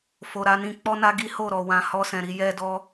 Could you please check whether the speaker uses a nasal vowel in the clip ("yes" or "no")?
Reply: yes